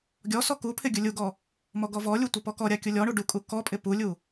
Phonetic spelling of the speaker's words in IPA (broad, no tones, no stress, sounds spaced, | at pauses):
ɡʲ ɔ s ɔ k u pʰ ɪ ɡʲ u lʲ u ɡ ɔ | m ɔ ɡ ɔ v ɔ lʲ u tʷ ɪ p ɔ k ɔ ɾʲ a kʲ u lʲ ɔ ɳ u ɖ u kʼ u k ɔ pʼ ɪ p u lʲ u